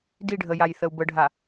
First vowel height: high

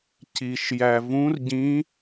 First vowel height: high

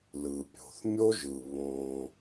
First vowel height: high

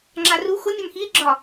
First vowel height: low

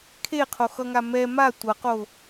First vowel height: mid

